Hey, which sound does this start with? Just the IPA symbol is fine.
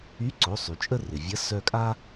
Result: y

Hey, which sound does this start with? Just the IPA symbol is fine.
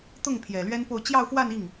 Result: t̪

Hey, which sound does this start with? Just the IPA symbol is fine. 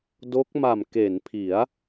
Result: d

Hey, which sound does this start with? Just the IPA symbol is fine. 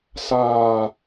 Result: s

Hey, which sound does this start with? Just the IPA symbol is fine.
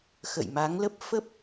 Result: x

